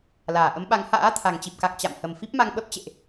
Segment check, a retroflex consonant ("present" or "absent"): absent